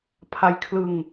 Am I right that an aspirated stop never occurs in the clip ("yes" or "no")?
no